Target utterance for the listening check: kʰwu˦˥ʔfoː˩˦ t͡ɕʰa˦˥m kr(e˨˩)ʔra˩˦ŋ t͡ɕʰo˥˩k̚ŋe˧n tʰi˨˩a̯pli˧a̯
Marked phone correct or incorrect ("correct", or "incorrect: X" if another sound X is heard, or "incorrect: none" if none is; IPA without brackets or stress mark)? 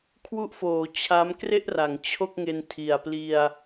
incorrect: e˥˩